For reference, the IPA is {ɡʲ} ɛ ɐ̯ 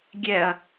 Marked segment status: correct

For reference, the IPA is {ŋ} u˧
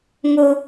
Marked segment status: correct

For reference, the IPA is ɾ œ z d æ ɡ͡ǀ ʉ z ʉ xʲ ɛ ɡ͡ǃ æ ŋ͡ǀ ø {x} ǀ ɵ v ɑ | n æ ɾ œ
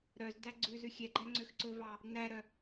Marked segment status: correct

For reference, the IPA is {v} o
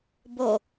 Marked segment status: incorrect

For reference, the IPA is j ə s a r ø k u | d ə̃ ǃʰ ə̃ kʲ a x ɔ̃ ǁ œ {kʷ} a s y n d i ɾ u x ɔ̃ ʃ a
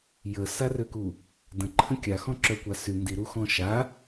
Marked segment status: correct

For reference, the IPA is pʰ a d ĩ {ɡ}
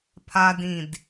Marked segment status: incorrect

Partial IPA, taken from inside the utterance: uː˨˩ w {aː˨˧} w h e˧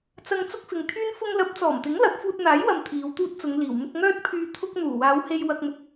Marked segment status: correct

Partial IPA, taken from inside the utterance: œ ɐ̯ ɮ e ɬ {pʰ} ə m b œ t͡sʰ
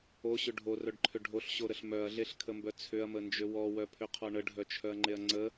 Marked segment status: incorrect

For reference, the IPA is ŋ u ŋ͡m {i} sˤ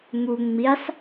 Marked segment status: correct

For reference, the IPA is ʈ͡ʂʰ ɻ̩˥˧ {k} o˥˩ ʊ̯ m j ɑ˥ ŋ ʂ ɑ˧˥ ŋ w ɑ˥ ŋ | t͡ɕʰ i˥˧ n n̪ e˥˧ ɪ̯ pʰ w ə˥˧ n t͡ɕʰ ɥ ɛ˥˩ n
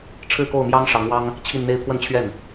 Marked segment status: correct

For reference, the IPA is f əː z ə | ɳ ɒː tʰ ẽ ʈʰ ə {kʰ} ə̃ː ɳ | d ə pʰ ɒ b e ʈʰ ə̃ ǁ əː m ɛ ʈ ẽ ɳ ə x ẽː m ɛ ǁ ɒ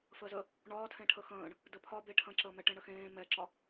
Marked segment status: incorrect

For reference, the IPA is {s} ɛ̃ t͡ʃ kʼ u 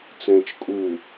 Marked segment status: incorrect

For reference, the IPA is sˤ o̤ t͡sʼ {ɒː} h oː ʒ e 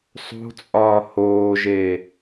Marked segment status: correct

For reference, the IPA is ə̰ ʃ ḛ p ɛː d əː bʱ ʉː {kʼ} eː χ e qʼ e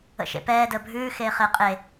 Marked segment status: incorrect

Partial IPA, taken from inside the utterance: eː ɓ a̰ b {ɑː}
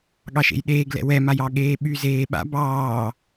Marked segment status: correct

